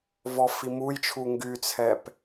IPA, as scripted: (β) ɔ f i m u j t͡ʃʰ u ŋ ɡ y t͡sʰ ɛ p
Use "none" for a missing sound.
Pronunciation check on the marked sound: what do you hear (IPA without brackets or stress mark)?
v